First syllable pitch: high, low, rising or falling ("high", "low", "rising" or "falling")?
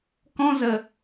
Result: high